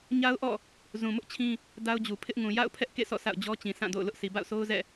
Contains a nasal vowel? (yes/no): yes